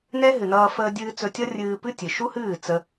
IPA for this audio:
n ɛ˦ ɦ ɨ˨ n ʌː˧ f əː˧ dʲ ɨː˧ t͡s ɵ˧ tʲ ʌ˦ rʲ ɨː˧ p ɨ˦ tʲ ɨ˨ ʃ u˦ h ɨː˦˨ t͡s ə˧

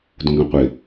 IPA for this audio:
d ũ ɡ ɑ̃ qʷ ɪ

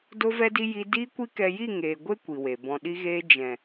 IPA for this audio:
d o˦ v ɛ˦ d i˦ j i˧ d iː˦ kʷ i˦ k ɛ˧ j i˦˨ ŋ eː˨ ɡʷ e˦ kʷ i˨ w e˨ b ɔ̃˧ ɗ i˧ ɣ eː˧ d͡ʒ ɛ̃˨

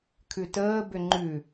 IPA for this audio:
kʰ ʉ t əː b ʏ ŋ͡ǃ ʉ

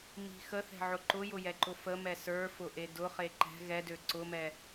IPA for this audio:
m i̤ x ə θ ɛ̤ ʕ ʊ ǃ ʊ j ʊ j ɛ ǃ ʊ f ə m ɛ s ə˞ f ʊ ʔ e d ʊ χ e ǃ ɛ̤ ɣ ɛ d ø ǀ ʊ m ɛ

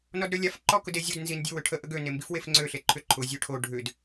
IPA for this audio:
n ɔ d ɾ ø lʲ a f ǃ ɔ k ʊ d e zʲ o d n z i n dʲ ʊ w ʏ ʈʰ ə ʔ ə ɡ ø n e m b i f w e f ŋ͡ǀ ø ɬ e ǃʰ ʏ ǃʰ ʊ zʲ ø ʈʰ o ɖʱ ʏ d

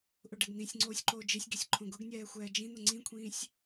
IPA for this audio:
ʔ ʊ ɖ ɛ ɡ n ĩ sʲ ŋ͡ǀ oː sʲ ǃ oː d͡ʒ i sʲ ɡ i sʲ ǃʰ õ ɡ ʊ ɡ nʲ ɛː xʷ ɛː d͡ʒ ĩ n̪ ʊ ŋ͡ǀ ĩ kʷʰ ĩː sʲ

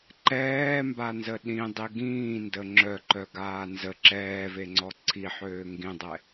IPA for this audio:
ǃ ɛː m b a n z ə ɗ ĩ dˤ i ɡ ĩː n d ə ŋ͡ǁ œ ǃ œ ɡ aː n z ə ǁ ɛː v e ŋ͡ǀ ɔ ǀʰ i ħ øː ŋ ɡ ĩ dˤ ɛ

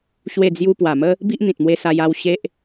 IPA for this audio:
ɕ w e˥˧ d͡z j u˦ p w a˨˩ m ə˦ | b i˦ ʔ n̪ ĩ˨ t̚ m w e˧ s a˧ j a˥˧ w ɕ e˦ ʔ

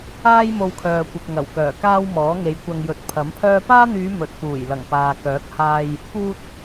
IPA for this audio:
aː˥ j m o˧ w kʰ œː˨ kʷ ɪ˨ k̚ ŋ ɐ˨˩ w k œː˨˩ k aː˥ w m ɔː˨˥ ŋ e˨˧ j kʷ ɐ˧ ŋ j ɵ˨˥ t̚ pʰ ɐ˨˥ m pʰ œː˥ p aː˥ n̪ yː˨˧ m ɵ˨ t̚ p uː˨˩ j l ɐ˨˩ ŋ p aː˨ k œː˨˥ k̚ h aː˧ j | p uː˧ t̚

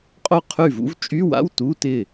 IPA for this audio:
qʼ o˥˩ qʰ y˥˩ v ṵ˥ v t͡ʃʼ y˧˥˧ w a̰˧˥˧ w t u˧˥˧ t ɪ˥˩

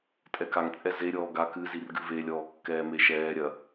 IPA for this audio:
tʼ ɛ k a ŋ t͡sʼ ɛ z e ɾʲ ɔː ɡ a k ɨ z i r ɡ ɨ v e lʲ ɔː kː ɛː m e ʃ ɛː ɾʲ ɐ

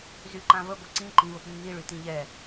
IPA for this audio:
z y ǃ ã v ə ɡʷ ɛ ǀ ĩ ǃ ĩ v ə p nː i ɭ y t ĩ ʎ ɛ

